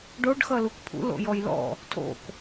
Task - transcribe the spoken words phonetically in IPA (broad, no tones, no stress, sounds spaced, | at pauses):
ɖ o ɖ x ʌ l u k pʰ ṵ l o̰ j ɔ j l ɔ̰ | tʰ o̰ k